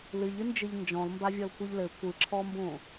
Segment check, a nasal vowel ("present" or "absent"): present